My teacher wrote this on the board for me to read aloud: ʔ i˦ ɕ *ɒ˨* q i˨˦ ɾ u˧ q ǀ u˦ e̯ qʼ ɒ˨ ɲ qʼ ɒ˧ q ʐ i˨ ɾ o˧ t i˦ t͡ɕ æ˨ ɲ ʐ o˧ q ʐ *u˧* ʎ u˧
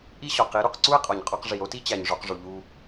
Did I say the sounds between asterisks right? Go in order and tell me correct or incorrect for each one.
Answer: correct, incorrect: u˨

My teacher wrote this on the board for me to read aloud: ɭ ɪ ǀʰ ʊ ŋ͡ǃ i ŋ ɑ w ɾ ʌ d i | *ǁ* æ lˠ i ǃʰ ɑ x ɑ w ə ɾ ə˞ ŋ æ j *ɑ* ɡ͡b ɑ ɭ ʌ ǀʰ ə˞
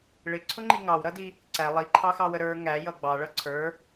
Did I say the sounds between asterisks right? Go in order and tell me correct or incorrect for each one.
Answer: incorrect: ǀ, incorrect: ʌ

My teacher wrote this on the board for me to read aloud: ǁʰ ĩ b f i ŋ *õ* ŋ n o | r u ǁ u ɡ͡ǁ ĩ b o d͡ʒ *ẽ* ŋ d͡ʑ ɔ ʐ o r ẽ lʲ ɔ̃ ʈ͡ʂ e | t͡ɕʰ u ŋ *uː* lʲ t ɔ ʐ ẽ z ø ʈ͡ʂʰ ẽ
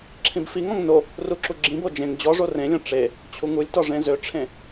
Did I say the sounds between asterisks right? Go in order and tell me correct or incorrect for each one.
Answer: incorrect: ɔ̃, correct, incorrect: u

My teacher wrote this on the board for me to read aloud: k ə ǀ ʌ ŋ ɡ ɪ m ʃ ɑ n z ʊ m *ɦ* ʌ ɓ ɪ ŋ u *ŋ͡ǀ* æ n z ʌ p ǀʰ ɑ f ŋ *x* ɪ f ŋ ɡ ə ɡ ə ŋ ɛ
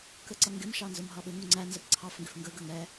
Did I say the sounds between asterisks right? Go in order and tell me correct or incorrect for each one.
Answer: correct, correct, incorrect: ɡ

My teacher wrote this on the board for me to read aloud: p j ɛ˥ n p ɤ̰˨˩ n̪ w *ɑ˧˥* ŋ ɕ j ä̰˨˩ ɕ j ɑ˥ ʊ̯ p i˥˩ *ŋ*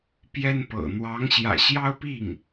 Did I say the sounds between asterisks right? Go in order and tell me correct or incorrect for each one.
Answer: correct, correct

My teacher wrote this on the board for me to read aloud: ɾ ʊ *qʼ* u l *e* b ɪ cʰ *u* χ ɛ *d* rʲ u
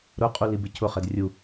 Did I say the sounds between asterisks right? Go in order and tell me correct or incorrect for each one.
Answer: correct, incorrect: i, incorrect: ʊ, correct

